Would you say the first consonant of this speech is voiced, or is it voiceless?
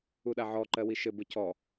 voiced